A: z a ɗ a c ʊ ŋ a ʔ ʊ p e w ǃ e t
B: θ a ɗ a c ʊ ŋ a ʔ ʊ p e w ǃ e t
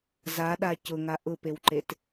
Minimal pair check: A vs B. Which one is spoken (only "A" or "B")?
A